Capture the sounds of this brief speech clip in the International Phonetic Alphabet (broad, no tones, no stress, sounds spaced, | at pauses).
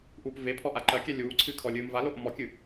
ʔ uː p v e pʰ ɔ ʔ a ǃ ɐ kʲ ɛ lʲ uː ǀʰ ɨː kʰ ɔ lʲ ɨː m v a l o ʔ m ɔ kʲ ɨ